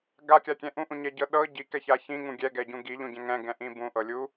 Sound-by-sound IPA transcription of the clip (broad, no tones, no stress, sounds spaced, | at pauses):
ɡ a kʲ a kʲ ɛ̃ ʔ ũ ʔ ũ ɲ ɛ ɟ ɤ ɗ ɤ ɟ i k ɛ ç a ç ĩ ŋ ũ ɡʲ ɛ ɡ ɛ ɟ ũ ɡ i ʎ ũ ɟ ɛ̃ ŋ ɛ̃ ɡ ɛ̃ ʔ ĩ b ũ ʔ ɤ lʲ u